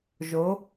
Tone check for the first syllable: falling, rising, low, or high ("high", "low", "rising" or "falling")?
rising